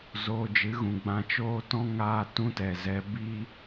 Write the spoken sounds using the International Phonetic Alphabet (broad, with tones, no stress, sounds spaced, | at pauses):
z oː˧ d͡ʒ ɨ˨˦ ɣ ũ˨ ɡ͡b ã˧ t͡ʃ oː˦ t ɔ̃˦ ŋ aː˦ t ũ˦ t ɛ˨ z ɛ˧ b iː˦